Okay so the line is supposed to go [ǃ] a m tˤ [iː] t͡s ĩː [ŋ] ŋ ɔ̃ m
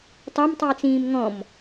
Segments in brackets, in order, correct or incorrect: incorrect: tˤ, correct, incorrect: m

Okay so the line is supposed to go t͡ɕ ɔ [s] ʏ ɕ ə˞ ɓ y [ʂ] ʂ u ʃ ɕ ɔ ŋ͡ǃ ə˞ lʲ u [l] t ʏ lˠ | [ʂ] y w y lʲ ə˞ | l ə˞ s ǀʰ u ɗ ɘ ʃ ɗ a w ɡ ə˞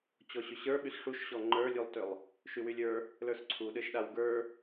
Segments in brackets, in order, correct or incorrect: incorrect: ɕ, incorrect: s, incorrect: lˠ, incorrect: ʃ

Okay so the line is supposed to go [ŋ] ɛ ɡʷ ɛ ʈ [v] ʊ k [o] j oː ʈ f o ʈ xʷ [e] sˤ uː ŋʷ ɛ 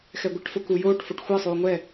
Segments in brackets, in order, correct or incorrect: incorrect: x, incorrect: f, incorrect: u, correct

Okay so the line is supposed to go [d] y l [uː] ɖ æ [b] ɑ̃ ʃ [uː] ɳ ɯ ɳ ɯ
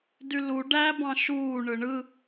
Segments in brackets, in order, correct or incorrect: correct, incorrect: u, correct, correct

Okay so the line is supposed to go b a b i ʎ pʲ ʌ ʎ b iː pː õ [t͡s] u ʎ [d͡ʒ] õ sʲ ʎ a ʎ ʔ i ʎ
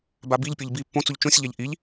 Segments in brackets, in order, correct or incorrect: correct, incorrect: t͡ʃ

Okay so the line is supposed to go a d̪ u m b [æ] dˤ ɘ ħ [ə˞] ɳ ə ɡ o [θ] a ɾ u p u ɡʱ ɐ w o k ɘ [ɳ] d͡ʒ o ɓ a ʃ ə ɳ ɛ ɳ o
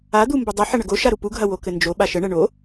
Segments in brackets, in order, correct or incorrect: incorrect: ə, incorrect: ɐ, incorrect: ʃ, incorrect: n

